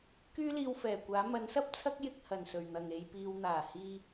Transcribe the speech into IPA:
kyː˥liː˧wfɛː˨˩kʷaː˨˥ mɐ˨˥nsɐ˥p̚t͡sʰɐ˥k̚ jɪ˧k̚hɐ˨˩nsɵ˨˩ɥn̪ɐ˨˩ŋ e˨jpiː˨wn̪aː˨˩ hiː˧

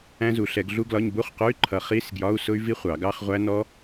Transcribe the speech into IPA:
æ̃˦˥zu˨˩˦ɬɛ˨˩˦ɡ ɮu˦˥ɡlɒ˧˥˧ɲ bu˧˥˧χqʊ˧˥˧y̯ǃʰʌ˨˩˦ χi˧˥˧sɡjɒ˧˥˧u̯ sʊ˦˥y̯vi˦˥χʷɑ˨˩˦ ɡɑ˧˥˧χʁʷæ˦˥ nɔ˦˥

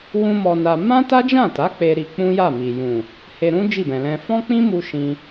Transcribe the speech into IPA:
wũ˦mɔ˧na˧ mã˦ta˦d͡ʒã˦˨ta˨˦ k͡pe˧ɾi˧ k͡pũ˦ja˦˨ mi˨ jũ˨ | he˧ɾũ˦ d͡ʒi˦˨bɛ̃˨lɛ̃˧ fɔ̃˦k͡pĩ˦mu˧ ʃĩ˧

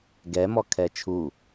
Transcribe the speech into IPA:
ɡɛmɔ kʰɛt͡ʃʰu

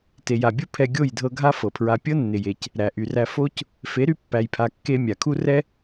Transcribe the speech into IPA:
te˨ ja˨bʲu˦ pʰɛ˧ ɡʲo˦˨jdʱɤ˧ ɡʱa˦fɤ˨pʰɹa˧ pʲɤ˦nːɪ˨je˨c | ɾæ˨ʔy˨ræ˧ fo˦c | fe˨˦ɾy˧ pːæ˨jpʰa˨ kːe˧ mʲa˨kʰu˦ rɛ˦

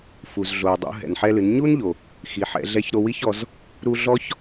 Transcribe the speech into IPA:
fu˩zɮo˩w dˤṵ˩˧ɦɛ̰˩nħɛ˧lɨ˩˧n ɲu˥nʎo˩ | xi˩˧ħɛ̰˩˧ɮɛ˧˥çɾo˧ wi˥çɔ˩˧z | ɾu˧ ɮɔ˥ç

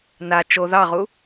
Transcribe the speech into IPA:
na t͡ʃo ðɑʁu

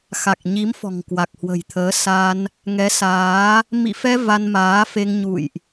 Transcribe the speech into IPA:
xa˨˩k̚ɲi˨˦m fɔ̤˨˩ŋkwa˨˩k̚hwə̤˨˩jt̪ʰəː˨˦ sa˧n | ŋɛ˨˦saː˨˦ | mḭ˧˨fɛ˧ va˧nmaː˨˦fe˧ŋ ɲṵ˧˨jʔ

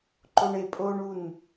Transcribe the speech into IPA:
ǃoɳe pʼoɳun

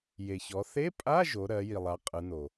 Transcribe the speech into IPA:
je˩çɔ˩˧ θe˧˥˧pʼa˧˥˧ ʒo˩˧ɾɜ˩˧ ji˩lˠa˩˧ qʼɯ˩˧no˩

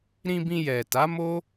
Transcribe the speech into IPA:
ɾĩ˧bĩ˧ jɛ˨ta˨˦ mo˦

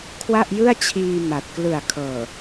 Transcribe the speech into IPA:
kʰwa˥˩ʔjɯ˥˩a̯t͡ɕʰiː˧ ma˨˩t̚ klɯ˨˩a̯kʰɤː˨˩

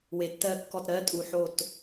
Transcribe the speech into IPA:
we˨˩tːɜ˦˨ kːɔ˦˨tɾɜ˦˥ tʼu˨˩ħo˦˨t

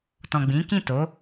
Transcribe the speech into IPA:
tɔ̃˨ɡ͡bĩ˨˦kĩ˦˨to˨˦

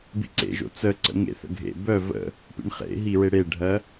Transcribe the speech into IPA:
bḭǀḛʒo̰ t͡səǀə̰ŋḛθə̰ ɡʱḛ bœ və̰ | pḭɳχḛɦiɹe ɽeɖʱɜ

